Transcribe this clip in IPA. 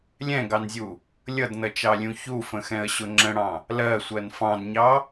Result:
lʲ ɛ̃ ɡ ɑ n zʲ u | lʲ ʌ d n ʌ t͡ʃ ɑ lʲ ũ ç u f ə̃ x ɛ̃ ə̯ ɕ ʊ ŋ͡ǁ ə̃ ɽ ɑ̃ | l ɜ sʷ ɜ n f ɑ̃ d ɲ ɑ

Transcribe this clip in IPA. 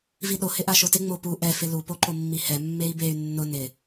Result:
v i ɗ o h ɪ ʔ a ʃ o t ɪ ŋ͡m o p u ʔ ɛ f ɪ l u p o ǃ o mː i h ɛ mː e i̯ b e y̯ nː ʊ n ɪ

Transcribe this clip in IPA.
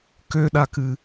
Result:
k ø ɗ a k ɨ

